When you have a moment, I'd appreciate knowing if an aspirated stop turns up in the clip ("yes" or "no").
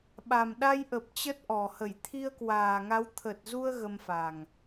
yes